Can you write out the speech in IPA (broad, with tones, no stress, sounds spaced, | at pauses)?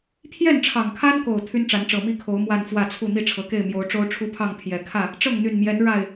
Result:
pʰ j ɛ˥˨ n ʈ͡ʂʰ ɑ˨˩ ŋ kʰ a˦ n k o˨˩ ʊ̯ t̪ʰ y˦ n ʈ͡ʂ a˨˦ n ʈ͡ʂ ɤ˨˩ m i˥˨ kʰ o˨˦ ʊ̯ m w a˥˨ n f w ä˥˨ t͡sʰ u˥˨ n̪ i˥˨ ʈ͡ʂʰ ɤ˨˩ k e˥˨ ɪ̯ m j o˨˦ ʊ̯ ʈ͡ʂ o˦ ʊ̯ ʈ͡ʂʰ u˦ pʰ ɑ˥˨ ŋ pʰ j ɛ˨˩ kʰ ä˥˨ | ʈ͡ʂ ɤ˥˨ ŋ n̪ y˨˩ n m j ɛ˨˦ n ɻ a˥˨ ɪ̯